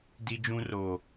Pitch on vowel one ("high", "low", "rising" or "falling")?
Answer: high